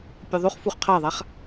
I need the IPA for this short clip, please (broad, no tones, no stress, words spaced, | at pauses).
pʲʉðˤʉχfuχ qʰaðˤaχ